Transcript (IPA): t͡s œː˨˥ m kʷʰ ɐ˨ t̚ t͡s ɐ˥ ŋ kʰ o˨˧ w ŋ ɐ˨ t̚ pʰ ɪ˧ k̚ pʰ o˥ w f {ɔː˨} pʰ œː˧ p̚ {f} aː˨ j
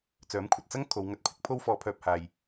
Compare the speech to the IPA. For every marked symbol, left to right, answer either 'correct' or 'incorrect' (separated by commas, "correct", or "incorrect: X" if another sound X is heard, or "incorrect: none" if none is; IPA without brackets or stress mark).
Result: incorrect: ɔː˧, incorrect: h